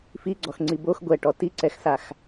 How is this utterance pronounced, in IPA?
f i ɡ͡ǀ ɔ x ŋ͡ǀ i b o x ɡʷ ɛ ʈ ɔ t i ǀ ɛ x s a x

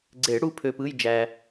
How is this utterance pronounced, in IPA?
ɡ͡ǀ e˨˩˦ ɽ u˧˥˧ pʰ ø˧ p ɯ˧˥˧ j d͡ʒ æ˧

